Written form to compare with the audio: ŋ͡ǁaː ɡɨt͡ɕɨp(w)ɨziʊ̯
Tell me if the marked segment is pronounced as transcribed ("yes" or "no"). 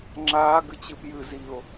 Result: no